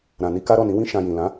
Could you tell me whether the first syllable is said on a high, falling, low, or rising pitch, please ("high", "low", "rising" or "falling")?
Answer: low